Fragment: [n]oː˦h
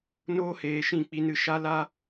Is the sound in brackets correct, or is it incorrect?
correct